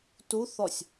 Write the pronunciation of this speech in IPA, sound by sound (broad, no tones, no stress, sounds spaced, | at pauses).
t u θ ɔ sʲ